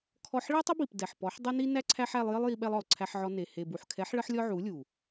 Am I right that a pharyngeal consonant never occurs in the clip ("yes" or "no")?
no